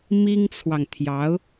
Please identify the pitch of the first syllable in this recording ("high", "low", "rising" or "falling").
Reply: high